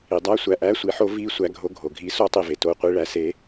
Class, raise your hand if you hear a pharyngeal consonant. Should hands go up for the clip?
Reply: yes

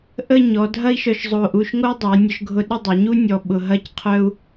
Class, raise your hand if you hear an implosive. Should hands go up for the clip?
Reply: yes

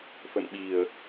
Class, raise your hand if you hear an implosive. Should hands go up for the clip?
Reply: yes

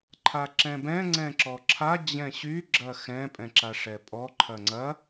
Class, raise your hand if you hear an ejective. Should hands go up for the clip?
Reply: yes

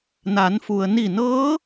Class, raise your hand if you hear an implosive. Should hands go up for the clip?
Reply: no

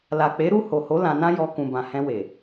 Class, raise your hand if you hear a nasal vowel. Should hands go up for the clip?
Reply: yes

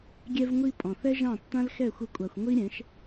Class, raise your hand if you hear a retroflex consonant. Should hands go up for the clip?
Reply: no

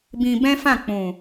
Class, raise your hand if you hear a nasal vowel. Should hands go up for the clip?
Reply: yes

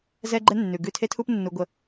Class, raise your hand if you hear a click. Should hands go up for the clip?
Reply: yes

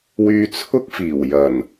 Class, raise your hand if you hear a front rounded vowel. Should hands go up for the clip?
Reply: yes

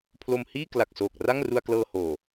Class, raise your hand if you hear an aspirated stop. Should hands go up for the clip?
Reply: yes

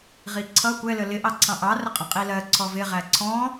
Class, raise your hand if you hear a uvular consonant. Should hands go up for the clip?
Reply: yes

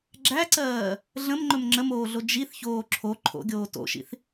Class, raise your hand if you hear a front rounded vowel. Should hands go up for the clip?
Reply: no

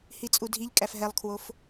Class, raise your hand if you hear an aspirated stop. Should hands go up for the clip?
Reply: yes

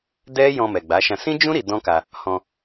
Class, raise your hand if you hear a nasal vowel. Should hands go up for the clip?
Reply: yes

